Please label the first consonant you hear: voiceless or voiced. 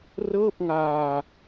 voiced